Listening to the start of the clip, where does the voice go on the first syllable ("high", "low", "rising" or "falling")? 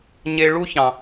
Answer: low